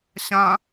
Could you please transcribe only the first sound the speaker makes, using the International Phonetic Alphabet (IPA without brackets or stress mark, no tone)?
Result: ɕ